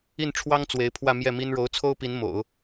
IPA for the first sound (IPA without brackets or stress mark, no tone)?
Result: i